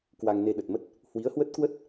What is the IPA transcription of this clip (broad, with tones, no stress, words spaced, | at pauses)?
kwa˧ŋne˧ɗə˨˩t̚mə˦˥t̚ | hwi˨˦ə̯hwə˦˥t̚kwə˦˥t̚